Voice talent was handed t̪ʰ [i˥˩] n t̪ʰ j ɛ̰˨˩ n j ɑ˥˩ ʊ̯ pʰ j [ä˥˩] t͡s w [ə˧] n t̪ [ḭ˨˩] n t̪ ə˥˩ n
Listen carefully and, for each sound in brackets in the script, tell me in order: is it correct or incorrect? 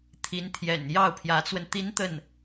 incorrect, incorrect, correct, incorrect

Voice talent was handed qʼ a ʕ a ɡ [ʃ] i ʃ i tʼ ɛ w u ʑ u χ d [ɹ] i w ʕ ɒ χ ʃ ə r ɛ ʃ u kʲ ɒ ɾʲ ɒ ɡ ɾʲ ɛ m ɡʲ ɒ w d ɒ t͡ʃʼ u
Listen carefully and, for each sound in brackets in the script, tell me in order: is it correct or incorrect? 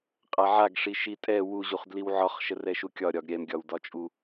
incorrect, incorrect

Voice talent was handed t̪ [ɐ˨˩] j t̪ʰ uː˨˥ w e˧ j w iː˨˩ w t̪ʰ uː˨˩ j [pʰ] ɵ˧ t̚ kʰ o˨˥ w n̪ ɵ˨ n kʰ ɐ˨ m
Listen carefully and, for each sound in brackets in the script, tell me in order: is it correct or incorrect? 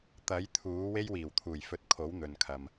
incorrect, incorrect

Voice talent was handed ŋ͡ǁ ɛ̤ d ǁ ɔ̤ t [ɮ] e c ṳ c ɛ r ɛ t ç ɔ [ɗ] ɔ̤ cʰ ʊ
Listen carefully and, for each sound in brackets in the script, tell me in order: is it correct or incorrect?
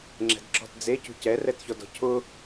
incorrect, incorrect

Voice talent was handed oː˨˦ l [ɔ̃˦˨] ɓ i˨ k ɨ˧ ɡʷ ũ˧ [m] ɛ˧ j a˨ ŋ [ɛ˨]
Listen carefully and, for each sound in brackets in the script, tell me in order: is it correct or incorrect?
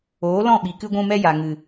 correct, correct, incorrect

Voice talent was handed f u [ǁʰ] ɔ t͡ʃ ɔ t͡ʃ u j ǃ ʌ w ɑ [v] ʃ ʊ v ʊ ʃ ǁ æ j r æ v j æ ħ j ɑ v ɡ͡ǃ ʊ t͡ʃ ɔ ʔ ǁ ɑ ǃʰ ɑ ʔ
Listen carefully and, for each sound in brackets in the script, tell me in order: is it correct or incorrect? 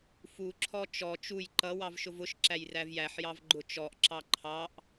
correct, correct

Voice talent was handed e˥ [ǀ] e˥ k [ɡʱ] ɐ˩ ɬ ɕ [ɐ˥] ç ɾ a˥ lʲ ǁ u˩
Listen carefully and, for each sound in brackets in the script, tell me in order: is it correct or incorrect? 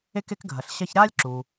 incorrect, correct, correct

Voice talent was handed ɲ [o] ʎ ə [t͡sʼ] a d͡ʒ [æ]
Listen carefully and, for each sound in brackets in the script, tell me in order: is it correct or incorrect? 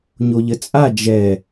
correct, correct, incorrect

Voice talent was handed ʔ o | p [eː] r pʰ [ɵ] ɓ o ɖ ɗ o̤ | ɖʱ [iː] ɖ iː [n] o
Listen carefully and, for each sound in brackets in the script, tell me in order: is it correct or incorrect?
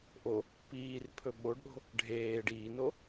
incorrect, correct, incorrect, correct

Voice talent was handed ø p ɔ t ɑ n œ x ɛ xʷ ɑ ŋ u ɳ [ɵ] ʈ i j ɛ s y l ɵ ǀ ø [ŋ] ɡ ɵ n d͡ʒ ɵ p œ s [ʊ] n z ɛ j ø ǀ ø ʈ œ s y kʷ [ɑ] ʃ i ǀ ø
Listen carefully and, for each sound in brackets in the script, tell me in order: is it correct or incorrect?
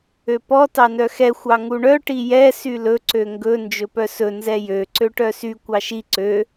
incorrect, correct, incorrect, correct

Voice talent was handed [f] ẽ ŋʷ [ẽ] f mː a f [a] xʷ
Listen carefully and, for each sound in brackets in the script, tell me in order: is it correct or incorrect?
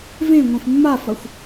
incorrect, correct, incorrect

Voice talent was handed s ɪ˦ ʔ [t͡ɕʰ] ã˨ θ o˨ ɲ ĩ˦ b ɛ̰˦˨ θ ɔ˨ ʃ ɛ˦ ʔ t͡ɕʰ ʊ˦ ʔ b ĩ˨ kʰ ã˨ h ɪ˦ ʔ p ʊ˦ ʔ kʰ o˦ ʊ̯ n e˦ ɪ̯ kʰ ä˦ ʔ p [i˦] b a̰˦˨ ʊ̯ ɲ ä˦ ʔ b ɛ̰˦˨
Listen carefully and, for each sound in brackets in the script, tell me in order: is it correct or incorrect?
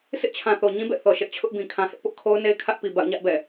correct, incorrect

